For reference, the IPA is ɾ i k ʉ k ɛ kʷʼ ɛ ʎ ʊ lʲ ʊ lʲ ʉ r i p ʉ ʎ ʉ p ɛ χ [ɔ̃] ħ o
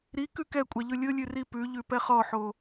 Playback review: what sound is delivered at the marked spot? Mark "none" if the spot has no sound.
ɔ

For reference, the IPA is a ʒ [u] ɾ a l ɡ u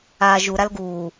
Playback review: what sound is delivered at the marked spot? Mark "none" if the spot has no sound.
u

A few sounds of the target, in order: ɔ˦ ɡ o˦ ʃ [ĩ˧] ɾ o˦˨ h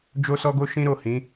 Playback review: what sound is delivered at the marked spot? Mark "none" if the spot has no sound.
ĩ˦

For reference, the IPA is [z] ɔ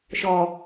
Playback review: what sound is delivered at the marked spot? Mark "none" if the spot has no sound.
ʃ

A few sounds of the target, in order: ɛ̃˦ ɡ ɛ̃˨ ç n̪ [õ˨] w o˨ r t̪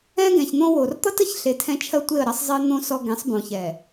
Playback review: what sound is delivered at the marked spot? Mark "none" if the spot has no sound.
õ˦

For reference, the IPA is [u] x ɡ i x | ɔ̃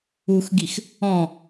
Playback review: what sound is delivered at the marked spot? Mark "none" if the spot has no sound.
u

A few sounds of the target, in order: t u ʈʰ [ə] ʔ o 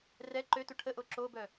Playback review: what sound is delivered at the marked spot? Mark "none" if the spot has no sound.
ə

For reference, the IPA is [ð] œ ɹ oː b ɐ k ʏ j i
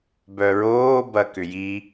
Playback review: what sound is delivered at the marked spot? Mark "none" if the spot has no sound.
b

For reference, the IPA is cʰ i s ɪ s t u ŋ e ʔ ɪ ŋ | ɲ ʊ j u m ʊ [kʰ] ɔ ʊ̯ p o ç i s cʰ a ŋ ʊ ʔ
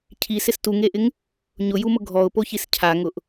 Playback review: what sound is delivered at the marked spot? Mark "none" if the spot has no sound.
ɡʱ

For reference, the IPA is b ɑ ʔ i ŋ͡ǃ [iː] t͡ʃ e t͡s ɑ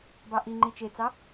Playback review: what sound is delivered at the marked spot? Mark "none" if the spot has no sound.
i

